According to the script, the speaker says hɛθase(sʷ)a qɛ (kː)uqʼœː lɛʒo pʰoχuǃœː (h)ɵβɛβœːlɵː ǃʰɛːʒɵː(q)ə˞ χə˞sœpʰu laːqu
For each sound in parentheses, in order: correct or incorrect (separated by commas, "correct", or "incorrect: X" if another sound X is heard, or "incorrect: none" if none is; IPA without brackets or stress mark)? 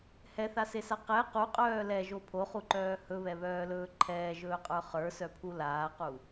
incorrect: s, incorrect: q, correct, incorrect: qʼ